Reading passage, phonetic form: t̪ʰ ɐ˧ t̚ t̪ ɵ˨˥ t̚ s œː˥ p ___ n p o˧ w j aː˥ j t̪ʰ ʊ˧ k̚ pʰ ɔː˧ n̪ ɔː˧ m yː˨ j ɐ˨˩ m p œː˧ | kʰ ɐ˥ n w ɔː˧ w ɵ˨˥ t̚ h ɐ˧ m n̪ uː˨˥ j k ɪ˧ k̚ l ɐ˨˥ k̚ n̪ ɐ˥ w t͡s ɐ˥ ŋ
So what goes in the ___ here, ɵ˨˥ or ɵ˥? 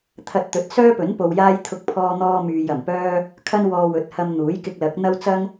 ɵ˨˥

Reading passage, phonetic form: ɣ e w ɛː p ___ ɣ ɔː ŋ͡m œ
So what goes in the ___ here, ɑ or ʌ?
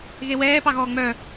ɑ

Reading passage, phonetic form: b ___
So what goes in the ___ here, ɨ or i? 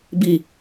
i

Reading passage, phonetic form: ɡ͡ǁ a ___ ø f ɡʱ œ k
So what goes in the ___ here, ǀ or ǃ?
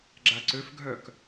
ǀ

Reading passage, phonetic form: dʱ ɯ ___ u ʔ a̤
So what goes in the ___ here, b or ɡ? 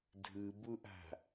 b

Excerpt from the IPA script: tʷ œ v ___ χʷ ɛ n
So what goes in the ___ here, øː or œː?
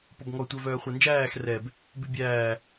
œː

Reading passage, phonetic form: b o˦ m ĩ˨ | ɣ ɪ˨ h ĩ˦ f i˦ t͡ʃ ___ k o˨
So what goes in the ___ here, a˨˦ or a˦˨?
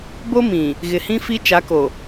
a˨˦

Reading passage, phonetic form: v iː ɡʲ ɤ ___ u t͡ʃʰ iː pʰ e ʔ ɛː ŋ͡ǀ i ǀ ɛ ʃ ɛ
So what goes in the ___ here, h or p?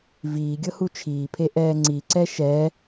h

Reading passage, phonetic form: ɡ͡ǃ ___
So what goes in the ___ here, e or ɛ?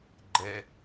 ɛ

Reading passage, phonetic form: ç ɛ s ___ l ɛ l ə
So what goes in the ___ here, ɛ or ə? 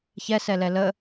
ɛ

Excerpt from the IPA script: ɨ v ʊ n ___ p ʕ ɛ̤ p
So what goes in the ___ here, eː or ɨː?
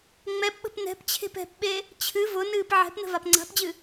ɨː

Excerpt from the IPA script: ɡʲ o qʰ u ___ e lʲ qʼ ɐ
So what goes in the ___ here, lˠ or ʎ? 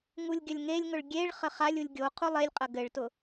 lˠ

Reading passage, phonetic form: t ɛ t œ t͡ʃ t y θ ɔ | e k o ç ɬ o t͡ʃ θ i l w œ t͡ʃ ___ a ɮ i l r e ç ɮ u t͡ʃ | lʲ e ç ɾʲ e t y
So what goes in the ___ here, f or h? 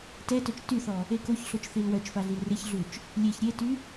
f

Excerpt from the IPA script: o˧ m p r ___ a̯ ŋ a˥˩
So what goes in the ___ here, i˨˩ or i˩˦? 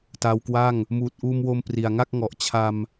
i˨˩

